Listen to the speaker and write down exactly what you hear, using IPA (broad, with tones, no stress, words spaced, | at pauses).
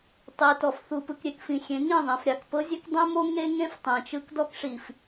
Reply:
tˤi˨tɔ˨f θu˨pɯ˨k ɾʲe˨kfĩ˨ xʲẽ˨˦ŋĩ˦˨ ðˤĩ˨fɾʲa˨kpɤ˦zʲe˦k dˤẽ˦mo˦ ŋe˦ŋẽ˦f tˤẽ˨t͡ʃɯ˦k dɔ˦kʂi˨f